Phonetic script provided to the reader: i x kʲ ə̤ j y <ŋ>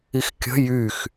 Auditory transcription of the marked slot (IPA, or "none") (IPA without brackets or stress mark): x